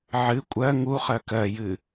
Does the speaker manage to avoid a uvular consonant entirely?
no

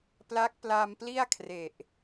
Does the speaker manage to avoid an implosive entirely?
yes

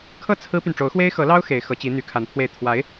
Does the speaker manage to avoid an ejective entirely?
yes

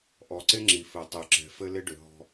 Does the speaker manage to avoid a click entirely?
no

